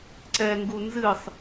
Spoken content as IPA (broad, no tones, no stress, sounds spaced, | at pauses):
ǀ ɛ ŋ ɡ u n z ɨ sˤ